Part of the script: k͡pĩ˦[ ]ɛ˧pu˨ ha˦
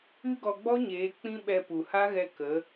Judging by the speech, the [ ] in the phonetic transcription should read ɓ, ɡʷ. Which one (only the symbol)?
ɓ